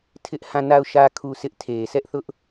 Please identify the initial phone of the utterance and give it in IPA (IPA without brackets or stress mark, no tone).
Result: tʰ